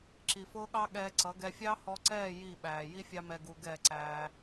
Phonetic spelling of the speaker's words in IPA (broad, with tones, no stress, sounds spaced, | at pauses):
ǁ i˨ f ʊː˦ ɠ ɑ˦ ɠ ɛː˧ ǀ ʌ˨˦ ɡ ɛ˧ fʲ ɑ˦ h ɔ˧ ǀ ɛː˦˨ j i˦˨ ɓ æː˨ j i˦ fʲ ɑ˦ m ɛ˧ ɡ u˧ ɡ ɛ˦˨ ǀ æː˧